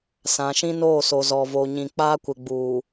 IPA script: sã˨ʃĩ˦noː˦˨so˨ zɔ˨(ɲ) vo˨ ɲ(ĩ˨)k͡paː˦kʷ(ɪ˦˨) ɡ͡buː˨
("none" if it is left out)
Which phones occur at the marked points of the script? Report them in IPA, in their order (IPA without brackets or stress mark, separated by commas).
none, ĩ˨, ɪ˨